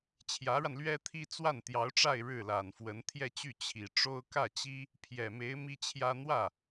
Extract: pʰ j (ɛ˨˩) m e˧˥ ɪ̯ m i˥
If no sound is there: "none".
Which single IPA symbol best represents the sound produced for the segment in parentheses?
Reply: ɛ˨˩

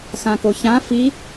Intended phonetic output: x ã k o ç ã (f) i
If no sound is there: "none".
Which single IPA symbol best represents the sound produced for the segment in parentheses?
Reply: f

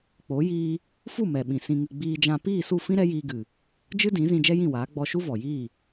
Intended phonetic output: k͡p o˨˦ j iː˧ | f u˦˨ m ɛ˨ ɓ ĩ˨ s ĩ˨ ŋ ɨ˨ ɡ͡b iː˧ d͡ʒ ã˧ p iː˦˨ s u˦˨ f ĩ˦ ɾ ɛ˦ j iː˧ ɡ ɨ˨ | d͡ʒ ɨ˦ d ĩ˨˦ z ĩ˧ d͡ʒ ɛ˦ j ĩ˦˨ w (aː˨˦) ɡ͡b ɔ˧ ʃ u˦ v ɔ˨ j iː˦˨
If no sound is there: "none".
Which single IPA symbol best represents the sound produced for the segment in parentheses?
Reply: aː˨˦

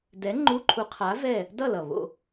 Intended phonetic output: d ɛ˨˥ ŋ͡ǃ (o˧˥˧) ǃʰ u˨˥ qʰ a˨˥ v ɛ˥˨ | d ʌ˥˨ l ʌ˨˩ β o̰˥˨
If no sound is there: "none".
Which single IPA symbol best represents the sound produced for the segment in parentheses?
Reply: u˧˥˧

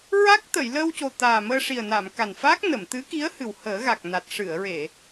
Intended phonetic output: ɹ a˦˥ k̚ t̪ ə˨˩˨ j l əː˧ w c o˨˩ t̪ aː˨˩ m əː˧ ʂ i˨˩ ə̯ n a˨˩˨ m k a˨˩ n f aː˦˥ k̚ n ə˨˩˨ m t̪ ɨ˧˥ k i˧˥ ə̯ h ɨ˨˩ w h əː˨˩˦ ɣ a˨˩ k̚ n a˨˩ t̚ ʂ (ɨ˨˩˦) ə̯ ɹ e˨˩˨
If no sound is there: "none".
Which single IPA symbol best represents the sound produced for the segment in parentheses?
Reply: ɨ˨˩˨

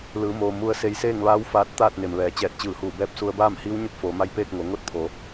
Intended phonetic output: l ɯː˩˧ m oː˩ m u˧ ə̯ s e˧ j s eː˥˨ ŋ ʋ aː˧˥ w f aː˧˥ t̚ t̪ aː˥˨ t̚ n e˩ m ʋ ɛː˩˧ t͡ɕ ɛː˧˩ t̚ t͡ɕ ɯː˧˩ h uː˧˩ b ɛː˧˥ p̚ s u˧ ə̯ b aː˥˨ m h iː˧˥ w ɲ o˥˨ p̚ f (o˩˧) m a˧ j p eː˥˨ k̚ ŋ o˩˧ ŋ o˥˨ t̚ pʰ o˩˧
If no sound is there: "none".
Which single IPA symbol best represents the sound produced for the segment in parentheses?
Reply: oː˩˧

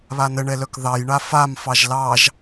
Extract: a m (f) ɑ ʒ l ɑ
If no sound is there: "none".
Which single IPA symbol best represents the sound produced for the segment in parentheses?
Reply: f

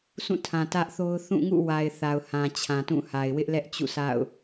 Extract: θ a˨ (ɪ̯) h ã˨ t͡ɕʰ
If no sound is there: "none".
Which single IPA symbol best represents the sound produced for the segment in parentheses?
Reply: ʊ̯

